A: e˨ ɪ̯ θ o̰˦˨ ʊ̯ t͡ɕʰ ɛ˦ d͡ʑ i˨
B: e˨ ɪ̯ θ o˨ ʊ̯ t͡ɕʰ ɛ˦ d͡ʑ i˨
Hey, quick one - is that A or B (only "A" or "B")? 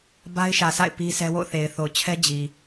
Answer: B